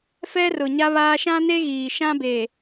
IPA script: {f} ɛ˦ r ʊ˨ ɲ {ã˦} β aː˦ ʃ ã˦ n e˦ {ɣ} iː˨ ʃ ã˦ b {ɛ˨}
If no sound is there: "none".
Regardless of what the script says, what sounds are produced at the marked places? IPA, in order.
f, a˦, ɣ, e˨

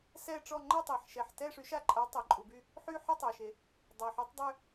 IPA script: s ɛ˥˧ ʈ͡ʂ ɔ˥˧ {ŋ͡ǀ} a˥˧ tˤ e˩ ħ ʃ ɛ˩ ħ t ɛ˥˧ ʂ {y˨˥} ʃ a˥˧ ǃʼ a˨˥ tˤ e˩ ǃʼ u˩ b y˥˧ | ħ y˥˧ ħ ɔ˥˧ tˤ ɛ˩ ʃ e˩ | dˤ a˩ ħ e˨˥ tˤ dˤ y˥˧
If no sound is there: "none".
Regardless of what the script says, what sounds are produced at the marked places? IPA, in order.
ŋ͡ǃ, y˨˥

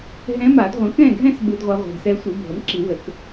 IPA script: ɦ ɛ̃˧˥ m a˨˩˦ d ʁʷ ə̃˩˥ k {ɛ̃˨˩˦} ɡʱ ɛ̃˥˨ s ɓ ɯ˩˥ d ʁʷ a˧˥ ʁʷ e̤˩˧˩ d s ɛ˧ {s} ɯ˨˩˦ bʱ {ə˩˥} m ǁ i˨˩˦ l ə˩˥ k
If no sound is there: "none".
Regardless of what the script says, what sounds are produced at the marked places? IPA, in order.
ɛ̃˥˨, sʷ, ə˩˥

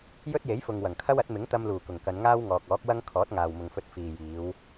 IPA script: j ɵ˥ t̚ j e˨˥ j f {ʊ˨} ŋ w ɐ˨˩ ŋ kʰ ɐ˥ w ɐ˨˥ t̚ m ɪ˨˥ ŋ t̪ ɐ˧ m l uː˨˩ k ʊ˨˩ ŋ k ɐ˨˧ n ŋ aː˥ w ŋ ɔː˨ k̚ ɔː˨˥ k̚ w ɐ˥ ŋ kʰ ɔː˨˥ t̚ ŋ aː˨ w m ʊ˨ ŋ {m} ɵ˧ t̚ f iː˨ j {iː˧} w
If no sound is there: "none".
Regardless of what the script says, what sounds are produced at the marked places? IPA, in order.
ʊ˨, f, iː˨˧

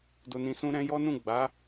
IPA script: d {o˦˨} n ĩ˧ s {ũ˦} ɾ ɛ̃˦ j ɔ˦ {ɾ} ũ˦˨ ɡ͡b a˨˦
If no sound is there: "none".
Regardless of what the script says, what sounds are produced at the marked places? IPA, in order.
o˧, ũ˦, n

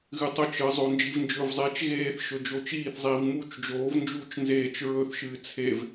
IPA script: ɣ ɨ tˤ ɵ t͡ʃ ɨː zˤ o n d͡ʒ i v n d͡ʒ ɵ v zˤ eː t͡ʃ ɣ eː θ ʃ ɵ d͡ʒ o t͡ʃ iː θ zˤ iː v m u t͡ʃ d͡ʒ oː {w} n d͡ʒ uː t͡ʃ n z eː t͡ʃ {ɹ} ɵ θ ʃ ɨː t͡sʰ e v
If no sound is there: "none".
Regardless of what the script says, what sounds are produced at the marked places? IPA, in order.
v, ɹ

